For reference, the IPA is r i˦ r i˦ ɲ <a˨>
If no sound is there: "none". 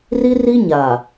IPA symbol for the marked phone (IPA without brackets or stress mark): a˨